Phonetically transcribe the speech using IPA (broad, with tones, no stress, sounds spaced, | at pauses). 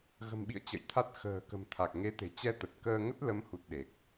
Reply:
ɣ ə̤˨˩ m ɓ ḭ˧˨ ə̯ t͡ɕ ə̰˧˨ j t̪ʰ a˦˥ t̚ x ə̤ː˨˩ k ə̤˨˩ m t̪ʰ a˨˩ k̚ ŋ e˨˦ t̪ e̤˨˩ t͡ɕ ɛ˧ t̪ ə˨˩ t̚ k əː˧ ŋ ə˦˥ t̚ l ə˨˦ m h u˨˩ t̚ ɗ e˨˩ k̚